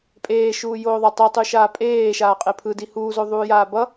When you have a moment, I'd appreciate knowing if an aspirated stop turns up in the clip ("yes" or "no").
yes